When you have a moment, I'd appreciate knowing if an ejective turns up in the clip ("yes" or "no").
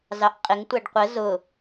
yes